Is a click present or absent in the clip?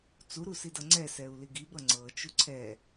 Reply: present